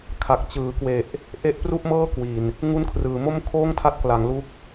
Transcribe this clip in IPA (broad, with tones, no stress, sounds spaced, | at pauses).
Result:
kʰ a˨˩ k̚ t͡ɕ ɯː˩˦ k w e˨˩ ʔ | ʔ e˦˥ ʔ p r u˥˩ ʔ m ɤː˥˩ k w i˨˩ n | ŋ u˦˥ n kʰ r ɯː˩˦ m o˥˩ m kʰ oː˥˩ ŋ tʰ a˦˥ t̚ k l a˩˦ ŋ l u˦˥ k̚